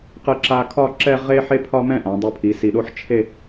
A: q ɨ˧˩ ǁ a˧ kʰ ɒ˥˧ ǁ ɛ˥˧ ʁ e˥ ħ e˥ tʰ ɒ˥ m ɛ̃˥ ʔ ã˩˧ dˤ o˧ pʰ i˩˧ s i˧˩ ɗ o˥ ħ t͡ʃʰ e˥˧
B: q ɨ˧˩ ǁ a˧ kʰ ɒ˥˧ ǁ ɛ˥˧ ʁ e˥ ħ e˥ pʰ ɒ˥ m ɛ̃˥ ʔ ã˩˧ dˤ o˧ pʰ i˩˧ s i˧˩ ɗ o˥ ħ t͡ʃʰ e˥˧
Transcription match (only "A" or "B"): B